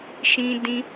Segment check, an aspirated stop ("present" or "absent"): absent